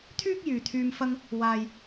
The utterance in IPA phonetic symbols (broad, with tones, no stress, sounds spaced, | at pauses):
t̪ʰ yː˥ k̚ j yː˨ t̪ʰ yː˧ m f ɐ˧ ŋ | w aː˨ j